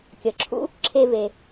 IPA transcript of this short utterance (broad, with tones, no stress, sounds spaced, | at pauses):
kʲ ə˩ ǁʰ ṵ˥ | ǁʰ e˧ v e˩